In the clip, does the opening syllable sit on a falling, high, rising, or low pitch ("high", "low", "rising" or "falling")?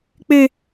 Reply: high